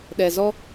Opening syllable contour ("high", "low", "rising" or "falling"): low